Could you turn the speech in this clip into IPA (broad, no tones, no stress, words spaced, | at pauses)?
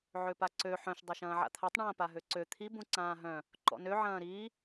ʕøpaǀø ħœ̃ʃ dˤɐʃɐ̃ːʕa̰t̪ʰatˤ ɳɐ̃ːpaɦøǀø t̪ʰi bũǀãːɦœ̃ | ǃɔ̰nø ʕɐ̃ːɾi